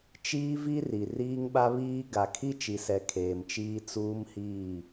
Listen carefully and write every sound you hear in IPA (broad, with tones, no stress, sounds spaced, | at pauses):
t͡ʃ iː˦ v i˦ r i˨ r iː˦ ŋ ɓ a˦ β iː˦ ɡ a˨ kʰ i˦ t͡ʃ i˨ s ɛ˨ kʰ eː˨ m t͡ʃ iː˦ t͡s uː˦ m h iː˦˨